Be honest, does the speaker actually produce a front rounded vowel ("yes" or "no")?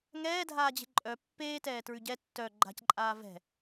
yes